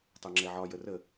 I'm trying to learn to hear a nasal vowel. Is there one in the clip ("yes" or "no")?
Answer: no